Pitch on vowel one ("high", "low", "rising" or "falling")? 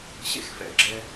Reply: high